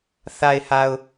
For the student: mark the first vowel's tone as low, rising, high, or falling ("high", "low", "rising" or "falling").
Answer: low